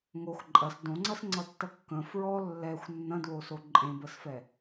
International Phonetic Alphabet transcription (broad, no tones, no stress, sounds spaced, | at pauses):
ŋ o x ǃʼ ɐ s d õ ŋ͡ǀ ɐ s ŋ͡ǀ ʌ tː ɐ kː ə̃ f ɹ ɔ lː ɛ xʷ nː ɐ̃ d w o s o ǃʼ ẽ b ə s f ɛ